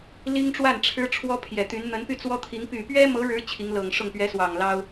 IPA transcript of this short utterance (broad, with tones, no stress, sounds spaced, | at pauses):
l i˥ ŋ ʈ͡ʂ w a˥˩ n ʈ͡ʂʰ ɻ̩˥ ʈ͡ʂʰ w ɔ˥ pʰ j ɛ˨˩ t̪ y˧˥ n n̪ ə˧˥ n p y˥˩ t͡s w ɔ˥ t̪ʰ i˧˥ ŋ p y˨˩ p ɥ ɛ˥ m ɤ˧˥ ɻ ɻ̩˧˥ t͡ɕʰ i˧˥ ŋ l ɤ˨˩ ŋ ʂ ʊ˥˩ ŋ p ɥ ɛ˧˥ s w ɑ˨˩ ŋ l ɑ˥ ʊ̯